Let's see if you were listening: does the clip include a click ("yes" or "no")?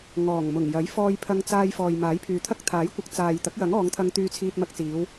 no